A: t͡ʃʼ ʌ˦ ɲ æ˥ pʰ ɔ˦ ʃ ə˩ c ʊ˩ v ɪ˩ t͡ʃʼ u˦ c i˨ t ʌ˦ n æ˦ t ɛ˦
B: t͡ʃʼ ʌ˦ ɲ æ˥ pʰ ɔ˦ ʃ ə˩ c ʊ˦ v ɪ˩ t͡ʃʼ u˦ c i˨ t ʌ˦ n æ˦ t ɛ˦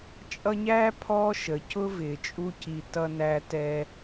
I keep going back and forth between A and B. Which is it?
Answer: B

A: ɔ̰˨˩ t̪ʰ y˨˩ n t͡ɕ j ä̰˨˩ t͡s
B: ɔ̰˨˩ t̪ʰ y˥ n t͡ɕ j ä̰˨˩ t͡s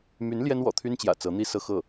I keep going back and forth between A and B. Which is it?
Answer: B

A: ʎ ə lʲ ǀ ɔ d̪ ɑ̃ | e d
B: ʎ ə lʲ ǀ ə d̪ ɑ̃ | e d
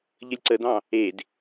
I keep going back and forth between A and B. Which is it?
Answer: B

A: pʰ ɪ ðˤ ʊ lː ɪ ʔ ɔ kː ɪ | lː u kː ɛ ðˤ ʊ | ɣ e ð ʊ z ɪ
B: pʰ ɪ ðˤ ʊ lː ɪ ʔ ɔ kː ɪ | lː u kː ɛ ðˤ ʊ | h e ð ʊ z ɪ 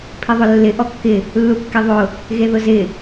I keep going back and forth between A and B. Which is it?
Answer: A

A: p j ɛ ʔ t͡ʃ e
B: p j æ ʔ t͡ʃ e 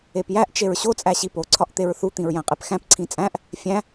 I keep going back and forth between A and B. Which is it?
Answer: B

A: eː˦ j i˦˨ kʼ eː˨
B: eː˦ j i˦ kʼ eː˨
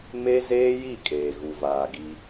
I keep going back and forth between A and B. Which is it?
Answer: A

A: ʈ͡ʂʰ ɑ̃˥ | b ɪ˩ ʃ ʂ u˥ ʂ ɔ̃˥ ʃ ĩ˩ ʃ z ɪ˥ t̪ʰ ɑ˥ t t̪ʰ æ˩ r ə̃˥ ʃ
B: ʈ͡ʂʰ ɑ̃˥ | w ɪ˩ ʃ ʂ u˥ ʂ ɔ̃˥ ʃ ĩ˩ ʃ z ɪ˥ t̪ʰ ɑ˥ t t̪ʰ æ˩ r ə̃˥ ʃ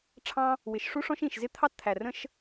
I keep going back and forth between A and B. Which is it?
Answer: B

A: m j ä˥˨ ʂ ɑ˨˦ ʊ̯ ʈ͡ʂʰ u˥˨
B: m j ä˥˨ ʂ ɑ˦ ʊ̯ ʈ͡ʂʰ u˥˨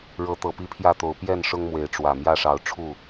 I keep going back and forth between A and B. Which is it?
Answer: A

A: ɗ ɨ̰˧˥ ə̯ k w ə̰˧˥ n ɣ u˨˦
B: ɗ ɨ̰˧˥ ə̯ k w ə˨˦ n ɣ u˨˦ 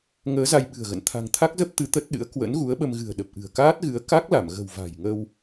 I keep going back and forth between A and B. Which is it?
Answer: A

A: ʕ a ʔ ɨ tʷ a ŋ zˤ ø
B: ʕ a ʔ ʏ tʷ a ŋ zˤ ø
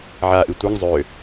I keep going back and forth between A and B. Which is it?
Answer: A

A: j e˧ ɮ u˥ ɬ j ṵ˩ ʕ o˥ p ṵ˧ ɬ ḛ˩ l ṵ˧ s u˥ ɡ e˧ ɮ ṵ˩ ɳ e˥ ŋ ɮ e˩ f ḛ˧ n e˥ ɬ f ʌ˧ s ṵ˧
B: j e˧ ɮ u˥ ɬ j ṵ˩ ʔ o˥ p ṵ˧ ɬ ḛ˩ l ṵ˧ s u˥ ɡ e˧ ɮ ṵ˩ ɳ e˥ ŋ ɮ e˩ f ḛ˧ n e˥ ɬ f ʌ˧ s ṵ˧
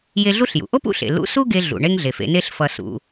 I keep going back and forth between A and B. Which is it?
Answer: B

